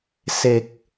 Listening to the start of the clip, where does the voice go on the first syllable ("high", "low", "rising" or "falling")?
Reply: low